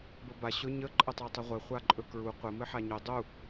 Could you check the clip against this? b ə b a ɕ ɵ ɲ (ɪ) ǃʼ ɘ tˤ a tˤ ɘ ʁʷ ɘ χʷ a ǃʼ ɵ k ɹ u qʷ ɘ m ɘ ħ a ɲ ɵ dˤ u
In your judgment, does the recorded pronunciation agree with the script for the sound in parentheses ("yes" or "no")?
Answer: no